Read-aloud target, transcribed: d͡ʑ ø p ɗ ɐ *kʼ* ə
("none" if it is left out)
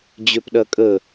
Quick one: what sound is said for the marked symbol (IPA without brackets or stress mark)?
kʼ